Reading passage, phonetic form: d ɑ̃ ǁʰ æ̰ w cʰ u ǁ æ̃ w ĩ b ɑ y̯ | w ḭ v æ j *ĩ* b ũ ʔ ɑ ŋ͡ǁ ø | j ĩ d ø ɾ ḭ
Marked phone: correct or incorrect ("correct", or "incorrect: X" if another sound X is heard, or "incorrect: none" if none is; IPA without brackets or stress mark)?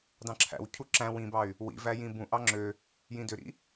correct